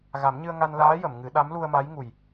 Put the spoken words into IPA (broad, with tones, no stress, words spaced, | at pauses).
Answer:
ɣa˨˩˦mɲɨ˧ə̯ŋa˧nlaː˧˥ jə˨˩˨mŋɨ˨˩˦ ɗa˧˥mlu˧ə̯ma˧˥j ŋu˨˩j